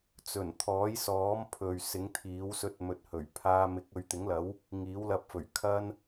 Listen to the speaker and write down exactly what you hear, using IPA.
t͡sɵ˨˩nt̪ʰɔː˨˥jsɔː˨˥m pʰɵ˨ɥsɪ˨˥ŋt̪ʰiː˨˥w sɵ˧t̚mɵ˨t̚hɵ˨˩ɥpʰaː˧ mɪ˨˥k̚ɵ˨˧ɥt̪ɪ˨˥ŋlɐ˨˥w | ŋiː˨˥wlɐ˧p̚fɵ˨˩ɥ kʰɐ˥n

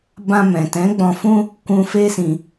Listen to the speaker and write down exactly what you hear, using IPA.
bã˧mɛ̃˨tɛ̃˨˦ ɡ͡bɔ̃˧fũ˦ | kʷũ˧ feː˦sĩ˧

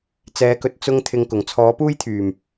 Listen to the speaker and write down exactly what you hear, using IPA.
t͡sɛː˨˥kɵ˨t̚ t͡sʊ˥ŋ t̪ʰɪ˧ŋkʊ˨˩ŋ t͡sʰɔː˨˥puː˥jt̪ʰyː˨˩m

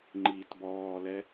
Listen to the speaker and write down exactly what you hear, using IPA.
ŋ͡ǃiːtbɔːlɛ

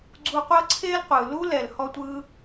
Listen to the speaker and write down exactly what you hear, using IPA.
ɡ͡ǀu˧qʷɤ˦ǀʰe˦lqʷɯ˨ lu˦ lɛ˨lhɔ˦tʷɯ˦

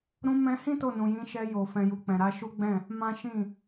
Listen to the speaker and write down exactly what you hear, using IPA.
ɾũ˧mɛ̃˧hĩ˦ to˦˨nũ˨jĩ˨˦ ʃɛ˧jo˨ fɛ̃˨ju˨k͡pɛ̃˨ ɾa˧ʃu˦ɡ͡bɛ̃˦˨ | mã˦ʃĩ˦˨

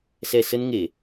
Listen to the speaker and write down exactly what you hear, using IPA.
sɛ˨˩sə˧n ŋe˧˩˨

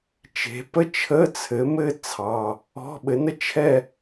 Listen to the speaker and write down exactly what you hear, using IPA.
t͡ʃe̤˩˧pə˥ t͡ʃʰə˧˥˧t͡sʰɘ˩˥mɘ˥ t͡sʰɑ˩˧˩ | ɔ̤˧˥˧ɓɘ˩˥nə˥ t͡ʃʰɛ˥˧

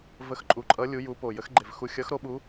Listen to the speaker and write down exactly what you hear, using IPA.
və˨˦xǃʼu˨˩ǃʼʌ˨˦ lʲu˨˦ju˨˦ po˨˩jə˨˦xɡ͡ǃe˨˩v xu˨˩xʲʌ˨˦xɾo˨˦ ɓu˨˦

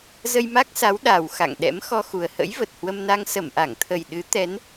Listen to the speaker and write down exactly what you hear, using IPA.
zə˧jma˦˥k̚sa˨˦w ɗa˨˩w xa̰˧˨ŋɗɛ̰˧˥m xɔ˧xu˨˩ə̯ hə̰˧˥jvə˨˩t̚hwə˧mna˧ŋ sə˧˩mʔa˧˩ŋt̪ʰə˨˩j ɗɨ˨˦ t̪ɛ˨˦n

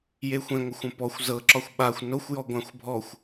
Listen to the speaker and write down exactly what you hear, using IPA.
jexʷẽŋʷəxʷə̃ pɔxʷ zɤǁɒxʷ ɓaxʷ noxʷjɔ ɡʷãxʷbʱɔxʷ

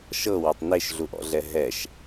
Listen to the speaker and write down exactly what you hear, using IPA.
ʃɤwɒtˤ neʃɮuʔɔ̰ɮɛ ɦɛʃ

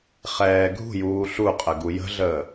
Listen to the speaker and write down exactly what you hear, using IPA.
χɛːɡʱṳjuː ɬuqʼə ɡujə̤ɮəː

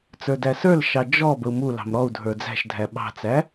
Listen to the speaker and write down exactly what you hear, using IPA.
t͡sə˞dæsə˞lʃɑ d͡ʒɔ bəu̯mulɑ̤m ɾɔu̯ dʱə˞d͡zæ̤ʃdʱæ ɓɑ̤t͡sæ

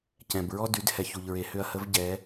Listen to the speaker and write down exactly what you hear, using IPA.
cɛ̃˩bɹɔ˥ dy˩˧dhɛ˩ç u˩ʎɹe˩˧hʏ˧ɐ̯hə˧˥v ɟɛ˩˧

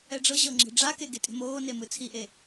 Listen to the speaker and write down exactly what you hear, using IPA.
ɛɖ͡ʐɤʑɤ ŋ͡ǁe̤ɖ͡ʐake ɡetʼe̤moːne mɯt͡sʰiʔe

